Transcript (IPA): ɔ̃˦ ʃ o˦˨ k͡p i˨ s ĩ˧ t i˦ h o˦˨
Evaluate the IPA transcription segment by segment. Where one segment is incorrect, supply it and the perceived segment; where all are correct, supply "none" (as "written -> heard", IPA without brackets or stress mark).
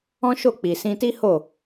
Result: none